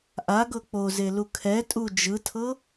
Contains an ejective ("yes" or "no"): yes